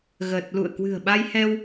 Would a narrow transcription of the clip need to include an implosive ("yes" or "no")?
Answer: yes